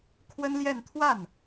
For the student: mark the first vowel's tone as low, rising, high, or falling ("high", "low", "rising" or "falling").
high